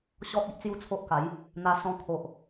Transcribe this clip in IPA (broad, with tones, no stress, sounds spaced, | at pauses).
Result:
ɕ ɔ˦ t̚ i˦ ʔ t͡s j u˥˧ t͡sʰ o˦ ʔ k a˨˦ j | n̪ a˧ s ɔ̃˧ kʰ o˨ ʔ